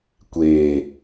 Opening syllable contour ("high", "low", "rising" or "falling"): low